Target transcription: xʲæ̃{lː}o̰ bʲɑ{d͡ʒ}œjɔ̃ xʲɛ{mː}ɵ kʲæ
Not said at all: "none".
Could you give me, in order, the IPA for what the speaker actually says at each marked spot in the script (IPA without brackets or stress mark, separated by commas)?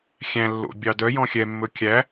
lː, d, mː